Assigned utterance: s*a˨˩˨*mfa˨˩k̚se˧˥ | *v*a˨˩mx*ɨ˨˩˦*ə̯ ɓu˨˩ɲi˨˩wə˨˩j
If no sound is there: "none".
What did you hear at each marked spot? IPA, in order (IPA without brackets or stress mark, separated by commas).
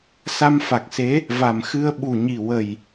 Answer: a˧, v, ɨ˧